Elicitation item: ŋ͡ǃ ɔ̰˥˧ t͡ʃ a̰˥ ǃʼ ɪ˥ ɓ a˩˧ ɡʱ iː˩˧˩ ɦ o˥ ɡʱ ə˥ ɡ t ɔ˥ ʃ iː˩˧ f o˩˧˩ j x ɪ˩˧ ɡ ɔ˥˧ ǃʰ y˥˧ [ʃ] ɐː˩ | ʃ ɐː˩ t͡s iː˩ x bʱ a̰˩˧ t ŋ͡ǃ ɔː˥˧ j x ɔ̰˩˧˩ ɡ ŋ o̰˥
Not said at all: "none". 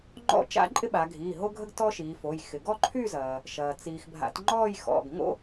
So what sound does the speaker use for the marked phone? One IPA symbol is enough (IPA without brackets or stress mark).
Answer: z